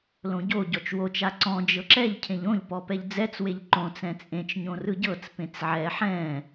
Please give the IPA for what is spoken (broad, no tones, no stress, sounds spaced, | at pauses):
l õ ɟ o ɟ ɔ t͡ʃ w o t͡ʃ a ǀ ɔ̃ d͡ʒ ɤ ǁ ɛ ʎ cʰ ẽ ʎ õ ʎ p ɔ p ɛ ʎ d͡z ɛ t͡s w e ʎ ǃ õ t͡s ɛ̃ t͡sʼ ẽ t͡ʃ ɲ õ r ɯ ɟ ɤ t͡s p ẽ t͡s ʕ ɛ ħ ɛ̃